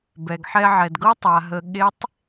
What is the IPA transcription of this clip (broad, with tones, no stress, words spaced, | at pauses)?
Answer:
bɛ˩ɡħɛ˧ʕɛ˩dɡɤ˥ tˤa˩ɦə˩˧ ɠe˧˥tˤ